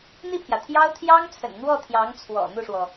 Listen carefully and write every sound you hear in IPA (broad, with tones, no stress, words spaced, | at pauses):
n̪i˥˩pʰjä˩ t̪ʰjɑ˥ʊ̯ t̪ʰjɑ˥ŋt͡sʰə̰˨˩n n̪wɔ˥˩t̪ʰjɑ˧˥ŋt͡sʰwɔ̰˨˩ n̪u˥˩ʂwɔ˩